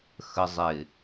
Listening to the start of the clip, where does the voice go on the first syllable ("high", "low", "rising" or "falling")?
low